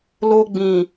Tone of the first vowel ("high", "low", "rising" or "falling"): high